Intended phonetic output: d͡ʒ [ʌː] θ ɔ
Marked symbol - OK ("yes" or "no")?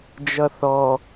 no